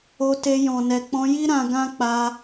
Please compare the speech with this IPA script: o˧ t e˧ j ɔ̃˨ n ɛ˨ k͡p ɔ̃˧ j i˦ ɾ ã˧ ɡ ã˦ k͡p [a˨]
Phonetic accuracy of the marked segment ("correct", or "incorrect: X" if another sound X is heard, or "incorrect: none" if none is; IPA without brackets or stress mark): incorrect: a˧